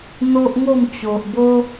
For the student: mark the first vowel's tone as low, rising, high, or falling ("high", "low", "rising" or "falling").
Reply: high